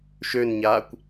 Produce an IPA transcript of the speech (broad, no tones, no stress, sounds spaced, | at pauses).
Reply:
ʃ ø n ɲ aː kʷ